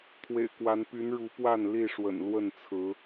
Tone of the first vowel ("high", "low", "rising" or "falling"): low